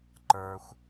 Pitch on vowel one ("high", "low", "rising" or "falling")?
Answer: low